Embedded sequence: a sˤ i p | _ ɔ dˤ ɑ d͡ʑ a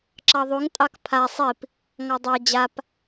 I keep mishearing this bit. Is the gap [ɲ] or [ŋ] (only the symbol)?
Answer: ŋ